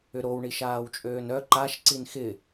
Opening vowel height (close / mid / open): close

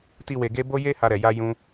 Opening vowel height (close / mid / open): close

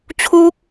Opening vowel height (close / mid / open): close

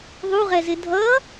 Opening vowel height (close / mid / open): close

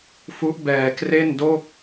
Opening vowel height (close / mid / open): close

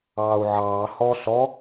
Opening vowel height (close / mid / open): open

